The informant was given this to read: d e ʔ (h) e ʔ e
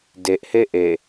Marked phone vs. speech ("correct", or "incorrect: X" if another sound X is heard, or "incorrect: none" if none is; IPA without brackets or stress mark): correct